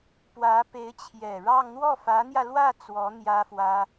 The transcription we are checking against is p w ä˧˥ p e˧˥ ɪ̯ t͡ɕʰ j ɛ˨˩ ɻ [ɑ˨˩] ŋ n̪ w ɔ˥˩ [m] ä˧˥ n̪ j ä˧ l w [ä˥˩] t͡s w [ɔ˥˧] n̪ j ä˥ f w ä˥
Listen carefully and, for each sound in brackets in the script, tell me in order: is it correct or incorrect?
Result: incorrect: ɑ˥˧, incorrect: f, correct, incorrect: ɔ˧˥

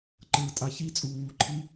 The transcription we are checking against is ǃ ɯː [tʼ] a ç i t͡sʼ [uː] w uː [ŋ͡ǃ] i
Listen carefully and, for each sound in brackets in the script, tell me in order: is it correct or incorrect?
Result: correct, correct, incorrect: ǃʰ

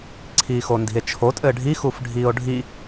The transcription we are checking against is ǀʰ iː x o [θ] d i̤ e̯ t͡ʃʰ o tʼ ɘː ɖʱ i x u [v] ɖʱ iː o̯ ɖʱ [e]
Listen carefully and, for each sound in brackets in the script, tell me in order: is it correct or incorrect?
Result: incorrect: n, incorrect: f, incorrect: i

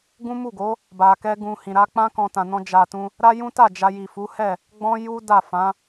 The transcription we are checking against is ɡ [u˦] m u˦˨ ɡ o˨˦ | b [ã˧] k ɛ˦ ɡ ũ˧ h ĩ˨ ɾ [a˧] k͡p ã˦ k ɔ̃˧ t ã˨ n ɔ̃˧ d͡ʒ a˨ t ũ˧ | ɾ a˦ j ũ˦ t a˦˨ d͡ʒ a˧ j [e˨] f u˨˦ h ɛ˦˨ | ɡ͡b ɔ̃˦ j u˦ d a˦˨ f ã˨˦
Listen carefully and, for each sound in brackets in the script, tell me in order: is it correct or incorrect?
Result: incorrect: ũ˦, incorrect: a˧, correct, incorrect: i˨

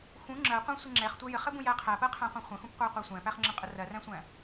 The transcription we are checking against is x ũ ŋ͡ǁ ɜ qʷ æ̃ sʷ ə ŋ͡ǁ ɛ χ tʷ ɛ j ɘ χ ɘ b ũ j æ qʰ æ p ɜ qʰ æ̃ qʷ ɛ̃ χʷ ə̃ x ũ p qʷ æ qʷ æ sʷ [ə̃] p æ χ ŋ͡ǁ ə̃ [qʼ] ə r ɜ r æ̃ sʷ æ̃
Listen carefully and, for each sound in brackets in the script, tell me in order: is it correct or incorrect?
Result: incorrect: æ̃, correct

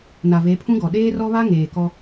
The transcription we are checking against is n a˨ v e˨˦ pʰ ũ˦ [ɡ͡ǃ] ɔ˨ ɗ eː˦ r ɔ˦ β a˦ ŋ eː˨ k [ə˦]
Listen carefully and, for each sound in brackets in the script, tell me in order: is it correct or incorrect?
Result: incorrect: ɡ, incorrect: ɔ˦

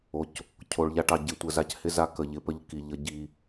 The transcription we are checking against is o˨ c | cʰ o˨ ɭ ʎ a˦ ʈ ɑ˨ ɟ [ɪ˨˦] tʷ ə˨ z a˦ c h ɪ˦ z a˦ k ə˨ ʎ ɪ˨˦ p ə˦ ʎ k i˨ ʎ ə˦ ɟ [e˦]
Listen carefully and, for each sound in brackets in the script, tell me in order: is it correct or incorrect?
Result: correct, incorrect: i˦

